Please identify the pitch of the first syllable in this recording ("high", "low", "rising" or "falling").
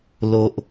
low